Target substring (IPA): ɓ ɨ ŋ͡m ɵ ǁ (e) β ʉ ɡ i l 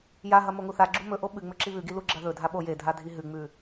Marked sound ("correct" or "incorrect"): incorrect